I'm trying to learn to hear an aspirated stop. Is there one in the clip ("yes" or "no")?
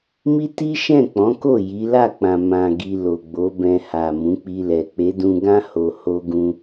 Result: no